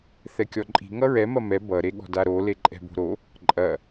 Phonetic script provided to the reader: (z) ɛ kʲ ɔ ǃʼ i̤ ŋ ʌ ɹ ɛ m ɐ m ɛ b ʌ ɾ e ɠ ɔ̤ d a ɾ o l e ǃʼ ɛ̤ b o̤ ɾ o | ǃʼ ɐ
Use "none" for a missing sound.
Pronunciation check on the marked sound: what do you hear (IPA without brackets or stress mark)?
θ